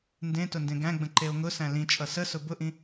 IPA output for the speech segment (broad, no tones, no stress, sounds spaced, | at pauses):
n d ẽ t ʊ n d ẽ ɡ æ̃ ɡ͡b ə̃ ǃ e o̯ ŋ ʊ s æ̃ l ĩ t͡ʃʼ ʌ s ə s ʊ b ʊ ʔ ĩ